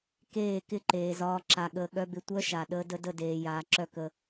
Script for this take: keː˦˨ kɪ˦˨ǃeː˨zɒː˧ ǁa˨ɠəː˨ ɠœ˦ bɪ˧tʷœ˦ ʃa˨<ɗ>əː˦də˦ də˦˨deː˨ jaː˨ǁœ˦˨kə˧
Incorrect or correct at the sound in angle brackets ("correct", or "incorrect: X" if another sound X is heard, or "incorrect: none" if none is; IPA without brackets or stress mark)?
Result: correct